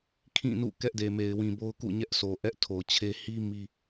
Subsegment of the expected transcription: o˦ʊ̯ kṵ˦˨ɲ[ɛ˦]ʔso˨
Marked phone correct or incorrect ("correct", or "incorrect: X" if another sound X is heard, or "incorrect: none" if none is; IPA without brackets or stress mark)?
correct